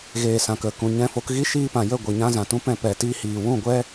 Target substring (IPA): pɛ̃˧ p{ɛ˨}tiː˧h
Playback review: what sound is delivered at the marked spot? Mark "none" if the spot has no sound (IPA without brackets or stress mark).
ɛ˨